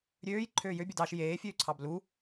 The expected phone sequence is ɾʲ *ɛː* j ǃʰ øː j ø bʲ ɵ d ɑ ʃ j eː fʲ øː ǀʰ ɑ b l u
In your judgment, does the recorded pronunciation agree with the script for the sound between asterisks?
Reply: no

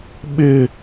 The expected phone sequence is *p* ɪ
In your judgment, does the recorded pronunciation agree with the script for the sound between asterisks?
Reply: no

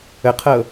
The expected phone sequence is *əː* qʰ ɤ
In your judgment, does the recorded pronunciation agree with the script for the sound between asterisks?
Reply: no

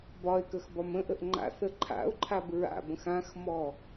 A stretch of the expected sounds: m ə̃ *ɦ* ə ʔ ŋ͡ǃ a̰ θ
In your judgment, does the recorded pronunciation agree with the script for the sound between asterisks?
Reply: no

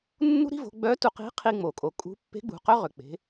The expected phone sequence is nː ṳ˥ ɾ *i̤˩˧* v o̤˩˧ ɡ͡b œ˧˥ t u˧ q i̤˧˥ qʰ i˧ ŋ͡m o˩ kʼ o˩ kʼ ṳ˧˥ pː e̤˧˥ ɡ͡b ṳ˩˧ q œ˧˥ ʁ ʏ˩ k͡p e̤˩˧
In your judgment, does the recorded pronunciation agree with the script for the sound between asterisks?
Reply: no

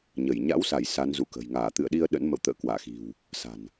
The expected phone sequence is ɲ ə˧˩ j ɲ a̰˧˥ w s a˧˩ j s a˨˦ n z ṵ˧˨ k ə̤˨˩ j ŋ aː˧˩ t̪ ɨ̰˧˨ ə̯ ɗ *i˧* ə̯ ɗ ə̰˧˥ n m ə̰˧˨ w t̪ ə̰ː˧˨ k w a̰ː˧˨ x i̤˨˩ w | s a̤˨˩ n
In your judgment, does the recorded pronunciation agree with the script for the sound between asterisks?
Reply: yes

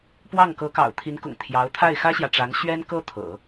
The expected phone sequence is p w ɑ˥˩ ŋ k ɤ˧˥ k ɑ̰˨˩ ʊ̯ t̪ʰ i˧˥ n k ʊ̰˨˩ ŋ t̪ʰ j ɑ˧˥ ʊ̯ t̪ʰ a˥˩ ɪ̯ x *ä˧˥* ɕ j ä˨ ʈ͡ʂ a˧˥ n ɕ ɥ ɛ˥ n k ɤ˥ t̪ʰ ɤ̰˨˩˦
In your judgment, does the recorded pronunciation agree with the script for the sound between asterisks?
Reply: no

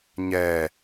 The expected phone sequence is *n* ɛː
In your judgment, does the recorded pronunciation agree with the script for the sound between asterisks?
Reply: no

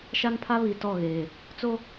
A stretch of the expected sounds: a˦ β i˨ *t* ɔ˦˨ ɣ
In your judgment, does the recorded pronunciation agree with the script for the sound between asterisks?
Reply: yes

